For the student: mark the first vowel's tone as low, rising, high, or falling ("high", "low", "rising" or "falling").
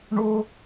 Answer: high